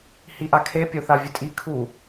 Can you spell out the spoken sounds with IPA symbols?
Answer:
hiʔakʰe pʲoθavʲɨtʼi kʰu

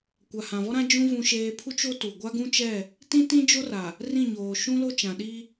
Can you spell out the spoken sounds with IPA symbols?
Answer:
kʷa˨hã˨vɔ˦ɾã˦ d͡ʒũ˦ vũ˦ʃeː˦ pʰu˦t͡ʃo˦tu˨ ɡʷa˦ɡũ˦t͡ʃɛ˦˨ | tĩ˦tĩ˦d͡ʒo˦ra˨ | rĩ˦˨ɲoː˨ ʃũ˦lo˦t͡ʃã˨ɗi˦

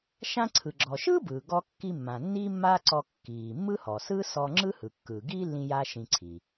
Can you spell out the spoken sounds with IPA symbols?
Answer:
ʃã˧ǀʰɯ˩ɡ͡ǁɔ˩ʃɯː˥ bɯː˩ ɡɔ˧kːi˧mːã˩ nːi˥mːaː˥ǀɔ˧kːiː˩ mːɯ˥hɔ˩ sɯ˥sɔ˧ ŋ͡ǁɯ˥hɯ˩kːɯː˩ ɡiː˥ lːĩ˥ja˥ʃĩ˧ǀʰi˩

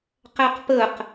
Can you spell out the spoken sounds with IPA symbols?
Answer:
qæqpəq

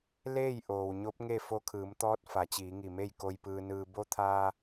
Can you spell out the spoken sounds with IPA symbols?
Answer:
leː˥˨j ʔoː˩wɲo˧˥p̚ŋe˥˨ fo˧kʰɯː˩˧mt̪ɔː˧˥t̚ fa˩˧t͡ɕiː˩˧ŋi˧˩me˥˨j ko˧jpɯː˧nɯː˧ bo˧˥t̪ʰaː˧

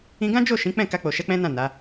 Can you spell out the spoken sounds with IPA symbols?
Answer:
ĩ˧ɡã˦d͡ʒo˦˨ ʃĩ˨˦k͡pɛ̃˦˨ ka˧k͡po˨ ʃɛ˧k͡pɛ̃˦nã˦˨ na˨˦

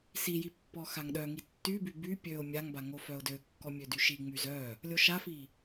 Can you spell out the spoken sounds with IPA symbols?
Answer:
siji pːɔxaŋɗœŋi tːyby by pʲøʊ̯ mʲaŋba ŋofœʊ̯døkːɔ mʲødyʃiŋ͡myz œ | lʲoʃafi

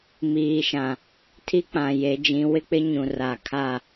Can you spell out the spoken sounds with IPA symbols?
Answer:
miː˨ʃã˨ | tʰi˦k͡pã˨je˨˦d͡ʒĩ˨˦ wɪ˦k͡pɪ˦ɲũ˨ ra˨kʰa˦˨

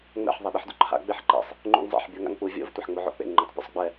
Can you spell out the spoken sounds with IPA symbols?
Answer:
ŋ͡mɛ̰ħ ðˤeɗiħdṵǃʰa̰ ɡ͡beħǃḛsˤ | ŋ͡ǃṵŋzˤɛ̰ħ bʲɔŋa̰ŋk͡pu vʲo̰v tʷɛħŋ͡moʕo̰k͡pḛŋ ŋ͡ǃutˤpʲṵsˤɡ͡bɛ

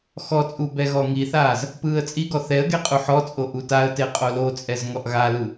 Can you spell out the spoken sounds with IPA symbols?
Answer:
xɔt͡sʼu bɛɣɔŋiθaːz | pɯːə̯t͡sʼiɡɔ θɛə̯ɡe qʼuħɔt͡sʼo ʔutaə̯te qʼolot͡sʼɛz ŋɔʔɣalɯ

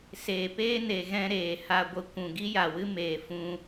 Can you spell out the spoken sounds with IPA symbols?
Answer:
seː˨ peː˦ne˨ɣɛ̃˧ ɾeː˨ha˧ ɡʷə˧ kʷũ˨ ɡi˦ja˨wɨ˦ meː˨ fũ˧

